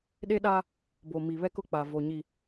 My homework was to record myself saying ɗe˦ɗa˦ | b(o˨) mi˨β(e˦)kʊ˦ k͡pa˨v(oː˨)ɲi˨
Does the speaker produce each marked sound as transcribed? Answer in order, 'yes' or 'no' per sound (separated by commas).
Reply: yes, no, no